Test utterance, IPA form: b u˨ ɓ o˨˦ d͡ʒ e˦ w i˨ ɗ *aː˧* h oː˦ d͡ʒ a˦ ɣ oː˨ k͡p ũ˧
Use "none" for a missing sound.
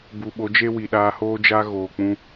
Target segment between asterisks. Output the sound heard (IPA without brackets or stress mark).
aː˧